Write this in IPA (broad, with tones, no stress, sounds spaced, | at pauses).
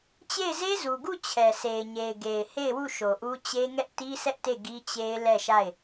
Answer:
t͡ɕ e˦˨ ɪ̯ z e˦ z u˨ ɡ u˦˨ t͡ɕʰ ɛ˨ sʰ e˨ ɪ̯ ɲ e˨ ɪ̯ ɡ e˨ ɪ̯ h e˦˨ ɪ̯ w u˦˨ ʃ o˨ ʔ u˦ t͡ɕ e˦ ŋ ɛ˦ ʔ t i˦ sʰ ɛ˦ ʔ t e˦˨ ɡ i˦ t͡ɕ e˦ ɪ̯ l ɛ˦˨ ʃ a˦˨ ɪ̯